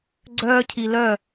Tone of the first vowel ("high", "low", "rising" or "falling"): high